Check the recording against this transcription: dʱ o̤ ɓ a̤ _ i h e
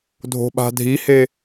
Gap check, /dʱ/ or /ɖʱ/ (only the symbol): dʱ